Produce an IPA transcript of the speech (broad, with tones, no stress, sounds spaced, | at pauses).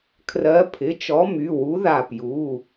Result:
kʰ r ɜ˨˥ pʰ ɪ˩˧˩ t͡ʃ ɔ˨˥ m y˩˧˩ w u˨˥ ð a˧˩ p j u˩˧˩